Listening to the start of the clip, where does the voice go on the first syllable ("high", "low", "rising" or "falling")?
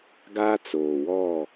high